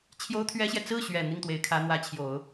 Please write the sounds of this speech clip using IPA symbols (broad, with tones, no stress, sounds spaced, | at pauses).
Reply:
t͡ɕʰ j o˥ ʊ̯ t̪ʰ ɥ ɛ˥ ɕ j ɛ˨ t͡s ɹ̩˥˩ ɕ ɥ ɛ˨˩ n̪ i˥˩ ŋ t̪ w e˧˥ ɪ̯ kʰ ä˧˥ n̪ w ä˧˥ t͡ɕʰ j o˨˩˦ ʊ̯